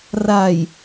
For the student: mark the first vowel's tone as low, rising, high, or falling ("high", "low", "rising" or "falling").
low